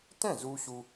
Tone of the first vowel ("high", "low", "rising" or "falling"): falling